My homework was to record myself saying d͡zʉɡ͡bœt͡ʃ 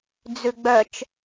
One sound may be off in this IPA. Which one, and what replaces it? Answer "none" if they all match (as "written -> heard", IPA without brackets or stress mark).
none